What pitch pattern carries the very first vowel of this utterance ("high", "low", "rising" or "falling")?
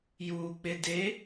low